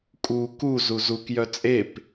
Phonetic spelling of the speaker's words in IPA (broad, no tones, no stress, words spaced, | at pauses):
kʼu ku zuzuk jœt͡sʼep